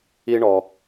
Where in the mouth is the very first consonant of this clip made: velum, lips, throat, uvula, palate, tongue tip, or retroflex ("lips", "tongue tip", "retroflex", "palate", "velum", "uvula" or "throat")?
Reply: retroflex